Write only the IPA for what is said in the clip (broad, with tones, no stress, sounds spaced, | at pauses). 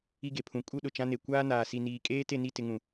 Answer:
i˦ ɡ e˨ pʰ ũ˨˦ kʼ u˦ ɗ ʊ˨ t͡ʃ ã˦ n e˨ kʷ aː˦ n aː˨ s i˨ n iː˨ kʼ eː˦ t e˦˨ n i˦˨ t ɪ˨ ŋ ũ˨